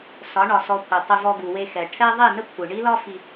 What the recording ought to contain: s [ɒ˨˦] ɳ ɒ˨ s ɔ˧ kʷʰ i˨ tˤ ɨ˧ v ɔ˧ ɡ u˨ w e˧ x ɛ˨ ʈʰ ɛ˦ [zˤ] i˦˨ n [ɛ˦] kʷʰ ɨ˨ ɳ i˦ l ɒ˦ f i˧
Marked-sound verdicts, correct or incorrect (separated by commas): correct, incorrect, incorrect